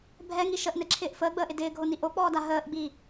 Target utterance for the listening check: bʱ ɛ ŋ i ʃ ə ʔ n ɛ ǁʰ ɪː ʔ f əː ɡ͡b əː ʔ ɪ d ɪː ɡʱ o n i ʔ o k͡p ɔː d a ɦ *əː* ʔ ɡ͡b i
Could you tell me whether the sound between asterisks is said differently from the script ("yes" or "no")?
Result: no